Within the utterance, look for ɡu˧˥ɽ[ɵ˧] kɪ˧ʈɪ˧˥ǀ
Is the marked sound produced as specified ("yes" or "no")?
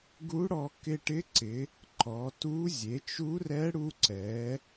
no